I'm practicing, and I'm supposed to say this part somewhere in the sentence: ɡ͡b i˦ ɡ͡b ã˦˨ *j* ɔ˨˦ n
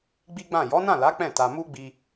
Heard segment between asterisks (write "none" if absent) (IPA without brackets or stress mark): j